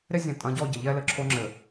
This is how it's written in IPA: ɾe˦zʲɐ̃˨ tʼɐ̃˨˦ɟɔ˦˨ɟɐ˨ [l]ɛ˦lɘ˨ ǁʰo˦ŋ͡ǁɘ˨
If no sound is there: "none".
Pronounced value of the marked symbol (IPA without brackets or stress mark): ʎ